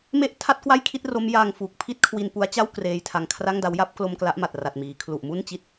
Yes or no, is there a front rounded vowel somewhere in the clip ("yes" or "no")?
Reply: no